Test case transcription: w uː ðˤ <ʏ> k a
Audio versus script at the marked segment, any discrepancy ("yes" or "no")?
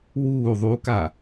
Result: yes